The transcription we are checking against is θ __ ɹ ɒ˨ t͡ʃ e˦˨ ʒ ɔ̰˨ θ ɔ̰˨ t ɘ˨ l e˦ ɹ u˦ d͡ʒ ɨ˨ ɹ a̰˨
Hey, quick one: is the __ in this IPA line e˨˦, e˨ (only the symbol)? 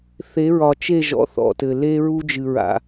e˨˦